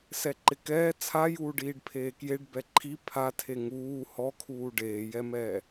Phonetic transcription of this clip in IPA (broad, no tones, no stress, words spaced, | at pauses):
sɛǃɪkɛː t͡sʰajuːɖ iːɖpʰeːkjeɖ bɛǃʰi pʰatʰe ŋuː hɔkʰuː ɖeːjɛmɛː